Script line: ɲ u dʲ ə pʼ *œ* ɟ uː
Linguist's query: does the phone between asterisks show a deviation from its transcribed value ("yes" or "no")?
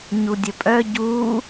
no